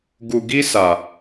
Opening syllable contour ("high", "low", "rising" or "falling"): low